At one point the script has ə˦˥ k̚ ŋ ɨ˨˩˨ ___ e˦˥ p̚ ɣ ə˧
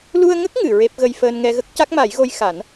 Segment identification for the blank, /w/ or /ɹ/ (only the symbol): ɹ